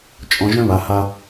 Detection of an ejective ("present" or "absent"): present